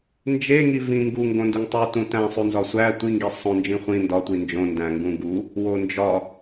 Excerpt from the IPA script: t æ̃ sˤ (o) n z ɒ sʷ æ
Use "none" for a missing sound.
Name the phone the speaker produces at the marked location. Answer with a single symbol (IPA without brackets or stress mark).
u